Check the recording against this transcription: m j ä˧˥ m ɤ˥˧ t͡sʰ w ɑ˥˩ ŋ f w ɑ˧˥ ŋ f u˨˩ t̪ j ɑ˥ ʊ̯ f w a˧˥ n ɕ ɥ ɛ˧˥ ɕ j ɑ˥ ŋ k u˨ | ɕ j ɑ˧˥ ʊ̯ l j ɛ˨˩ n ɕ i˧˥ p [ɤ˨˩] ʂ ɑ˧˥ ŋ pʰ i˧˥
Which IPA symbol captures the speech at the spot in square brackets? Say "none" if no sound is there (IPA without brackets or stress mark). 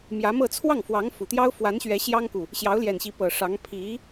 ɤ˨˩